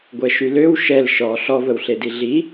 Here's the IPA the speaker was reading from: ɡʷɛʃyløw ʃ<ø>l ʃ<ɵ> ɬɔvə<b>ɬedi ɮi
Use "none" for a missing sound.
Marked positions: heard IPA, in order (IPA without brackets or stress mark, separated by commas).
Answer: ɛ, ɔ, w